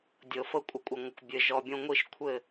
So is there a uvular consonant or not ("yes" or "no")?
no